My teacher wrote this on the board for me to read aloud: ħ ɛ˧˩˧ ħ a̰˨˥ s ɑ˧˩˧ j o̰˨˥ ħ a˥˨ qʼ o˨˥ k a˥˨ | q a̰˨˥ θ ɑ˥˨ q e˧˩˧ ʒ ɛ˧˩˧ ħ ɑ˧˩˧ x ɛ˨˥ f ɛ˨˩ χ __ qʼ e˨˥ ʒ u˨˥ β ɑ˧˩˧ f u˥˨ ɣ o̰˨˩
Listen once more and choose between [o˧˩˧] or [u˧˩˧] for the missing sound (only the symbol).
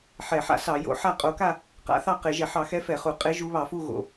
u˧˩˧